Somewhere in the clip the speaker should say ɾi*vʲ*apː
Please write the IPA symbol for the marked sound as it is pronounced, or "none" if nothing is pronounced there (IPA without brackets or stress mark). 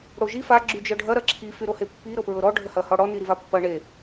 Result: v